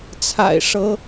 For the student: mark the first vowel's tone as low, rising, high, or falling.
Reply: low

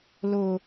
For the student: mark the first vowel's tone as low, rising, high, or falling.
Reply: high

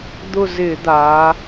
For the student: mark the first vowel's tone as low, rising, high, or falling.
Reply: falling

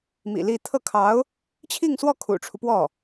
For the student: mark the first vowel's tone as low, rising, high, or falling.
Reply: low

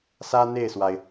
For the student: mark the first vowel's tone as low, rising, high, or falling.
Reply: high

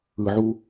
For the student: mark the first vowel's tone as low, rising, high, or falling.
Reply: low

